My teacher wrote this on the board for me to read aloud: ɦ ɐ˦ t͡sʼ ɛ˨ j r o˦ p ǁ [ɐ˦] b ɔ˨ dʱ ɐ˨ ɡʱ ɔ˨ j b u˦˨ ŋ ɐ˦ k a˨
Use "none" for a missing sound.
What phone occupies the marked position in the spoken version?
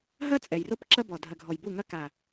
ɐ˦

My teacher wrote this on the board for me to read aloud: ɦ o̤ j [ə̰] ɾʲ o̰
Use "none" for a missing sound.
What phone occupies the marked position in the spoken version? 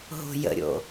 ə̰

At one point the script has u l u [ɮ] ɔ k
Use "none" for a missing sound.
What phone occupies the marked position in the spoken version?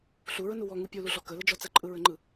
ɮ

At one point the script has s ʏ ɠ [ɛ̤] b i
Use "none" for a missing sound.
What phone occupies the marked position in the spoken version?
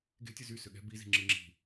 ɛ̤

